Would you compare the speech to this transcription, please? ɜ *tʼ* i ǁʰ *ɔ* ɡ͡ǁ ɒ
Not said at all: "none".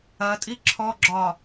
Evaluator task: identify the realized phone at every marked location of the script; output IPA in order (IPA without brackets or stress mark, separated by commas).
tʼ, ɔ